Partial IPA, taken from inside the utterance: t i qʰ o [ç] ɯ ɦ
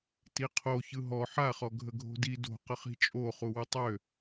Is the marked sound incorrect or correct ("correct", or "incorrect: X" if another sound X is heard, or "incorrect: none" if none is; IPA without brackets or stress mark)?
correct